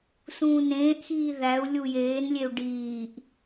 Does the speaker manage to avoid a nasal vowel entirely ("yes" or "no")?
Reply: no